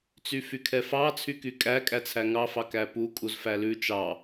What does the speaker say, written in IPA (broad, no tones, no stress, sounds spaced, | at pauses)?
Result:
t͡s y f y kʰ ɛ f ɑ t͡sʰ y k y kʼ æ kʼ æ t͡sʰ æ ŋ ɑ f ɑ k æ p u kʼ u z f æ l ʉ t͡ʃ ɑ